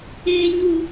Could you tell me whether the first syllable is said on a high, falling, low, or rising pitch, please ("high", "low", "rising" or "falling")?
high